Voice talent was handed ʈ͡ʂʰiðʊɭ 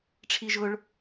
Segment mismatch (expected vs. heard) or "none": ð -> ʒ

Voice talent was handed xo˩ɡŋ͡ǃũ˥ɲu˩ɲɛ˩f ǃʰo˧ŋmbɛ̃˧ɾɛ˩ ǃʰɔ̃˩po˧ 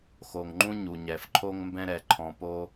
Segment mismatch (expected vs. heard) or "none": ɡ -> ŋ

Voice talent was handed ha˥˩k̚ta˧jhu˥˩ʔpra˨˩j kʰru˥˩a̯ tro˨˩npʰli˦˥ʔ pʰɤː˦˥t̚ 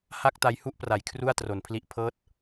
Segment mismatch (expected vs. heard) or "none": none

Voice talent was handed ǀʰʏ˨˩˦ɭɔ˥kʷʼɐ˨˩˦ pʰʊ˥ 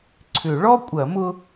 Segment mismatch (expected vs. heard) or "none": pʰ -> m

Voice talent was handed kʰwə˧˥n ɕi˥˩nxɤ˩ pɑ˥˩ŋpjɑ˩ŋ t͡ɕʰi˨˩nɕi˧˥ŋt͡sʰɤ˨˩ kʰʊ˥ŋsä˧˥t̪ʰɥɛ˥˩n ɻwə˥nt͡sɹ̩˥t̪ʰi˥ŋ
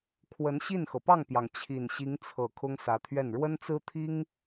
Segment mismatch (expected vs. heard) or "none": none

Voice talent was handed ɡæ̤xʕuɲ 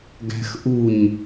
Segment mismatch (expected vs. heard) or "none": ʕ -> ʔ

